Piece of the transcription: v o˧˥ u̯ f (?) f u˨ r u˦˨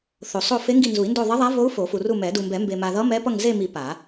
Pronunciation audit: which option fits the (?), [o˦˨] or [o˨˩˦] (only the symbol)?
o˨˩˦